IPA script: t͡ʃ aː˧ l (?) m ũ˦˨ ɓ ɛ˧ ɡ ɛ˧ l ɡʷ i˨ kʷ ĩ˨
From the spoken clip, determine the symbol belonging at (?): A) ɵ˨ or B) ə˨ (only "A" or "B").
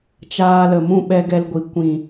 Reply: B